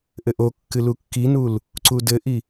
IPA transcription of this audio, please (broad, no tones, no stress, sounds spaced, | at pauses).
ʔ ɘ ʔ o kː ɨ l u kː i n u l | ǀ u d ɘ ʔ i